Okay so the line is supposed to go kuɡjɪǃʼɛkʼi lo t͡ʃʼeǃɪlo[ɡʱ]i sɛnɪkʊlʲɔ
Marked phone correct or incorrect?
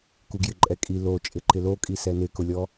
incorrect